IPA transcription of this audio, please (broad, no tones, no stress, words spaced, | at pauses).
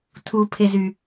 tʰupʰezy